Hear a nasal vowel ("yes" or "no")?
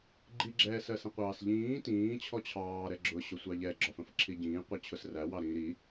yes